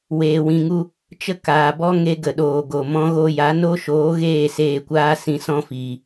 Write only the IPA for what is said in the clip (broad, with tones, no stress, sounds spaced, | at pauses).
w eː˨ w ĩ˨ ŋ u˧ | t͡ʃ ə˦ k aː˨ b ɔ˦ ŋ e˦ ɡ ə˨ ɗ oː˨ ɡ o˨ m ɔ̃˧ ɣ o˧ j a˨˦ n o˦ ʃ oː˨˦ ɣ eː˦˨ s eː˦˨ kʷ aː˦ s ĩ˧ s ɔ̃˦ f iː˨